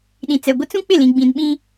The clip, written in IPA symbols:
ɗ ĩ˨ t͡s ɛ˨ ɡʷ ɪ˦ t͡s ũ˦ k͡p ɪ˦˨ l ĩ˨ ɡ͡b ĩ˨ n ɓ ĩ˦

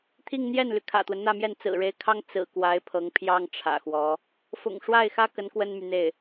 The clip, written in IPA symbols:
t̪ʰ i˥˧ ŋ n̪ j ɛ˥˩ n l y˩ kʰ ä̰˨˩ t̪ w ə˦ n n̪ ä˥˧ m j ɛ˥˩ n t͡s ɹ̩˨˩ ɻ e˧˥ ɪ̯ kʰ ɑ˥ ŋ t͡s ɹ̩˨˩ k w a˧˥ ɪ̯ pʰ ɤ˧˥ ŋ pʰ j ɑ˥ ŋ ʈ͡ʂʰ ä̰˨˩ x w ɔ˧˥ | f ʊ̰˨˩ ŋ ʂ w a˥˩ ɪ̯ x ä˥ k ə˧˥ n k w ə˥ n m y˨ n̪ e˥˩ ɪ̯

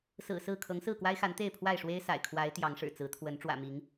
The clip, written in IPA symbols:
s ɹ̩˨˩ s ɹ̩˥˨ kʰ ɤ˨˦ ŋ s ɹ̩˥˨ k w a˦ ɪ̯ x a˨˦ n t̪ e˥˨ ɪ̯ pʰ w a˥˨ ɪ̯ ʂ w e˦ ɪ̯ s a̰˨˩ ɪ̯ kʰ w a˨˦ ɪ̯ t̪ j ɑ˨˦ ŋ ʂ ɻ̩˨˩ t͡s ɹ̩˨˦ t̪ʰ w ə˨˦ n ʈ͡ʂ w ä̰˨˩ m i˨˦ ŋ

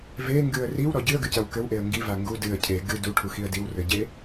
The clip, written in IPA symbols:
v e ŋ ɡ ɨ ə̯ r i w ɾ ɔ ɟ ɨ ə̯ ɡ ɨ c ɐ w k ɘ w ʔ e ə̯ ŋ ɡ i v a ŋ ɡ u d ɨ ə̯ cʰ e ɡ ɨ d u ʈʰ u x i ə̯ d i w r ɘ ɟ e

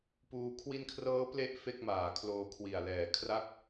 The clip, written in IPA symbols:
p uː˧ kʰ w i˧ n kʰ r ɤː˦˥ p l e˦˥ ʔ f e˥˩ k̚ m aː˨˩ kʰ l oː˧ kʰ w i˨˩ a̯ l ɛː˨˩ kʰ r a˥˩ k̚

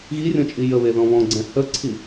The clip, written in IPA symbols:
ɣ i rʲ ɔ̃ t͡ʃʼ i j ə β e ð ɔ̃ β ɔ̃ ɡ͡ǀ ɛ̃ h ə ǀʰ i

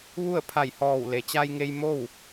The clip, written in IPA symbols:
ʋ u˥˨ ə̯ pʰ a˧˩ j h ɔː˧˩ w l e˩ t͡ɕ a˧ j ŋ e˧ j m o˥˨ w

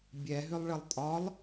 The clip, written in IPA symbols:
bʲ ɛ ɦ ʏ lˠ ɭ ə lˠ tʼ ɒ lˠ

